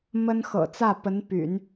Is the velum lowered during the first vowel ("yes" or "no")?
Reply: no